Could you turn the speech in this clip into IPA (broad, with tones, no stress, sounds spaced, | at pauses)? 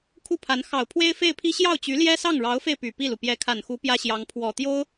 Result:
kʰ u˥˩ pʰ a˧˥ n x ɑ˨˩ ʊ̯ pʰ w e˥ ɪ̯ f e˥˩ ɪ̯ pʰ i˥ ɕ j ɑ˥˩ ʊ̯ t͡ɕ y˧˥ l j ɛ˥ s ɑ˥˩ ŋ ɻ ɑ˧˥ ʊ̯ f e˧ ɪ̯ p y˨˩ p i˥˩ l u˩ p j ɛ˧˥ kʰ a˨˩ n x u˧˥ p j ä˥ ɕ j ɑ˧˥ ŋ pʰ w ɔ˨˩ t̪ j o˥ ʊ̯